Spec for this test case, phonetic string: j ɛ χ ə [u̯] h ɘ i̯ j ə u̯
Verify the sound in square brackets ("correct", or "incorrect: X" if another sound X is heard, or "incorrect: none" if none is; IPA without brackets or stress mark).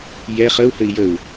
correct